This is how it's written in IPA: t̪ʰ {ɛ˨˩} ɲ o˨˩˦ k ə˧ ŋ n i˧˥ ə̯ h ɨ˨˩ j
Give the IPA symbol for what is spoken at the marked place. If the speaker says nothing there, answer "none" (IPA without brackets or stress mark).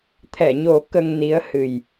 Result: ɛ˨˩˨